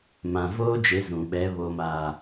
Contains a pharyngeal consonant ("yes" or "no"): no